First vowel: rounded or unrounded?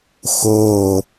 rounded